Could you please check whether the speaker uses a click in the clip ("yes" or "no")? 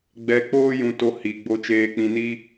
no